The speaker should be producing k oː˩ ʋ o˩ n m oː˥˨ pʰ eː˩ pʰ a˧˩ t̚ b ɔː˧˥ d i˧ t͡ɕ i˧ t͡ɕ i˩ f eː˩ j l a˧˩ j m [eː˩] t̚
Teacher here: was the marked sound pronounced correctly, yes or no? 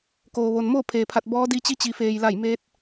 no